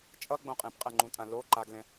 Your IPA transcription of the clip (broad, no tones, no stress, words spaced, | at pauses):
t͡ʃʼʌɡ͡bõ qʼẽpqʼɛŋ͡ǃũtʼã lo ǃaɡlɛ̃